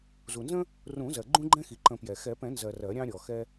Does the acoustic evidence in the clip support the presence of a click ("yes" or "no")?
yes